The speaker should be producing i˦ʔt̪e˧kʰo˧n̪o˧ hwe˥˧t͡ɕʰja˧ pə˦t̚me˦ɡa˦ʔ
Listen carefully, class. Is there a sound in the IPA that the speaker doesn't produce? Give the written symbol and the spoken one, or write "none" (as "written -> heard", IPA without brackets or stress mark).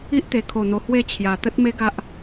p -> t̪